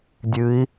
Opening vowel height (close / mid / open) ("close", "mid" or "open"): close